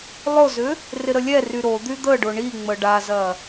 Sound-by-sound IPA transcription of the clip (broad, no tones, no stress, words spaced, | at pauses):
lˠʊzʏ | rɪɾəlʲɛry ɾod̪y d̪əɖʊ ɳi ŋ͡məɖazɐ